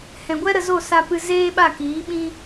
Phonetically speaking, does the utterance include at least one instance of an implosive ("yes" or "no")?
yes